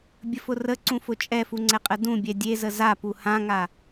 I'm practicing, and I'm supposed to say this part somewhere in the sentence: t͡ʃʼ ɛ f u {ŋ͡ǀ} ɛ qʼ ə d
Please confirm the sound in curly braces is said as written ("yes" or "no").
yes